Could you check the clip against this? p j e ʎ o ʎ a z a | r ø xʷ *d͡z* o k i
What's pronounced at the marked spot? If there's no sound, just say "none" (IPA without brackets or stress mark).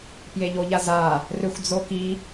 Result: d͡z